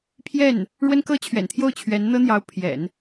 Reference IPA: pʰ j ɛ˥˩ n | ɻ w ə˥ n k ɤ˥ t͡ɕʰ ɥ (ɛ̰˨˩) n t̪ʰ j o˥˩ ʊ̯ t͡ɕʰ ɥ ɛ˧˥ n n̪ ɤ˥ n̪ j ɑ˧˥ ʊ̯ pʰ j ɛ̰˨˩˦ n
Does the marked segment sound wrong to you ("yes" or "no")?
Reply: no